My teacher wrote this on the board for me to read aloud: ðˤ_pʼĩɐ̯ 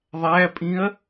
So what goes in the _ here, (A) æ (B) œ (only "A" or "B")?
A